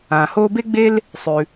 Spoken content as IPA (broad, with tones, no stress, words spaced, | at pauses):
ãː˩hoː˧ be˧ɡ͡be˧l | sˤʉ˩